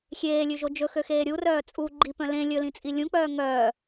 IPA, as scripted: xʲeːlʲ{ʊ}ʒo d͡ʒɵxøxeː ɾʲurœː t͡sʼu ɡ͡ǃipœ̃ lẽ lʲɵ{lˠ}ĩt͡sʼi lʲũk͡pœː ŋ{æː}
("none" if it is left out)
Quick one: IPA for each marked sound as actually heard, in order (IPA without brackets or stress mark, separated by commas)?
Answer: ʉ, l, œː